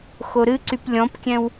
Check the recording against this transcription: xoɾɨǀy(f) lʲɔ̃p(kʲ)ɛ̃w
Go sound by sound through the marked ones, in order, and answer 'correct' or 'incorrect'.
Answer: incorrect, correct

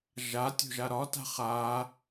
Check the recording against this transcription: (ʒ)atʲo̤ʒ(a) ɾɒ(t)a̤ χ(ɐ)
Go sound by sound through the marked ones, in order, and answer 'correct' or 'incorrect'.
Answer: correct, correct, correct, incorrect

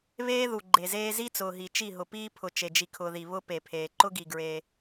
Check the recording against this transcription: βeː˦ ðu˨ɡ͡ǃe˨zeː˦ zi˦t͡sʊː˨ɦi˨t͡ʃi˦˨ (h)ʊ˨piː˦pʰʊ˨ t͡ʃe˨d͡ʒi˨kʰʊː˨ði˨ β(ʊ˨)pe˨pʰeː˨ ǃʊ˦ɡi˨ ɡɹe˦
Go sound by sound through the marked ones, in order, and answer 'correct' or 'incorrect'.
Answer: incorrect, incorrect

